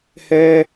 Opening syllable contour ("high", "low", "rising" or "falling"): high